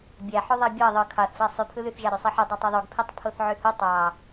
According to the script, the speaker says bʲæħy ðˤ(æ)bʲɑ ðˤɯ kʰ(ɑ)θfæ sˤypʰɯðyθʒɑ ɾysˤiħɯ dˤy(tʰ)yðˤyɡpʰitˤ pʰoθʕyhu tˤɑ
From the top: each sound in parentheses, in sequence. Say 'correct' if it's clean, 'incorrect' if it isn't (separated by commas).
correct, correct, incorrect